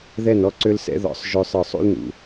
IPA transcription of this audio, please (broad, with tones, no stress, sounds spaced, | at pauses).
ð ɛ˦˨ n ɔ˦ ǀ ø˦ l s ɛ̰˦ ð ɔ̰˨ sˤ ʒ ø˦ sˤ ə˞˦˨ sˤ ṵ˦ l n ṵ˨